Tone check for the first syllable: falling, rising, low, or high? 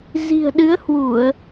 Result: low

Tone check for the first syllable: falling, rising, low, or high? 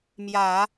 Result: low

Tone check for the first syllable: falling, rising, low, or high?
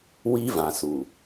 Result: high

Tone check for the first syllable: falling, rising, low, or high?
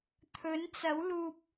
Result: rising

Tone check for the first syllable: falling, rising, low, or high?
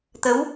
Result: rising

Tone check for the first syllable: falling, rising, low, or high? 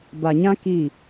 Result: low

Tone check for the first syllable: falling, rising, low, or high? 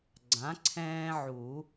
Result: rising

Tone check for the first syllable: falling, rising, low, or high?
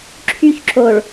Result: high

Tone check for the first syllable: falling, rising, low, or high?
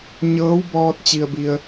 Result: rising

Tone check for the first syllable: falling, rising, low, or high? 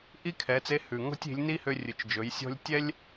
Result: high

